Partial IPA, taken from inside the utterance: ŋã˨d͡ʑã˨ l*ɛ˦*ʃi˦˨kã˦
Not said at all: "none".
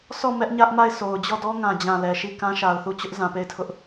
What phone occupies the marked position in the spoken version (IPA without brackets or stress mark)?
ɛ˨